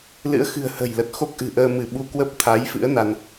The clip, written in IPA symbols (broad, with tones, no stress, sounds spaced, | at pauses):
l ɨ̰˧˥ ə̯ x ɨ̤˨˩ ə̯ h ə̤˨˩ j l ə˨˩ t̚ x o˦˥ k̚ ʔ ɨ̤˨˩ ʔ əː˧ m ɨ˧˩ ɓ u˧ k w ə˦˥ p̚ t̪ʰ a˨˦ j f ɨ̰˧˥ ə̯ n a˧ n